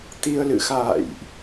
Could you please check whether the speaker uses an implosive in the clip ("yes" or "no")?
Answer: no